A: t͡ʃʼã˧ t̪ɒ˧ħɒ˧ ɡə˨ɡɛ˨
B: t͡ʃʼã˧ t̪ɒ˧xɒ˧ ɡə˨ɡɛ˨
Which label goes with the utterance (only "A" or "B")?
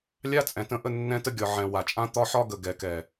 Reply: A